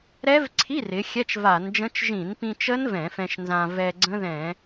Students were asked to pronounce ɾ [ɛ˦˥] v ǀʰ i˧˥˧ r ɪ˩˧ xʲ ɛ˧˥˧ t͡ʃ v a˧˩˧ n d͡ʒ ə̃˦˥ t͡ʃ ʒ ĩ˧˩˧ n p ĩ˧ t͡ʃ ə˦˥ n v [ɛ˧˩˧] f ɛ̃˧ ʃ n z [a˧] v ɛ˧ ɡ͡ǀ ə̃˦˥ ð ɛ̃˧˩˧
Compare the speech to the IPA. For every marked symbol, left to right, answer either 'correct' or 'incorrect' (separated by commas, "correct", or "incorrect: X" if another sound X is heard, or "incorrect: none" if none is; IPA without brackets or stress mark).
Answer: correct, incorrect: ɛ̃˧˩˧, incorrect: ã˧